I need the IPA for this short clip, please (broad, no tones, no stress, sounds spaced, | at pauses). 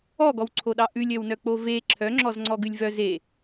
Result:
ɔ ɡ ɔ w ǀʰ o ɗ ɑ ʔ ʉ lʲ œ w n œ k͡p o v e ǁʰ œ ŋ͡ǁ ɔ z ŋ͡ǀ ɔ ɡ ʉ lʲ v œ z e